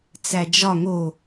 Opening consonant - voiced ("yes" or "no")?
no